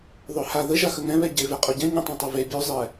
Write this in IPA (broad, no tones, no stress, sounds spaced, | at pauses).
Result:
ðˤ ø h a ð ə ʒ a x ə ŋ ɛ̃ β ɛ ɟ e v ɛ qʼ o ɟ ɛ̃ ɲ ə̃ tˤ ɛ̃ tˤ o v e bʲ ø zˤ ɛ